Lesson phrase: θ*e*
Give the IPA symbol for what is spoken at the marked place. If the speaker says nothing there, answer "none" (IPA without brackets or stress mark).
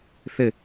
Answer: ɘ